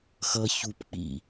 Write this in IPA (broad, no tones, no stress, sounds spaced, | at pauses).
x ʌ ç u p k͡p ḭ